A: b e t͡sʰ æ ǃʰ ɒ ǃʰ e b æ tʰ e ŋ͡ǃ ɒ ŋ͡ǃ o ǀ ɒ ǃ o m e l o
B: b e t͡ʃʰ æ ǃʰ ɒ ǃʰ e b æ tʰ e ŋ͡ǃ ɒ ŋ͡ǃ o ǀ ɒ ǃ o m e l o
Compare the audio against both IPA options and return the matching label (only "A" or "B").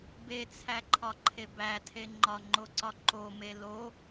A